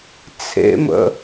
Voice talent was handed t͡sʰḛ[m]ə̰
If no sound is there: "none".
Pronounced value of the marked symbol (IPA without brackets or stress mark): m